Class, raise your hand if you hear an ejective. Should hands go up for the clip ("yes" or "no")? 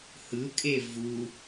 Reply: yes